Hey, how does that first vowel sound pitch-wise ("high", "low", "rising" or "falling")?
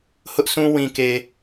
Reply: high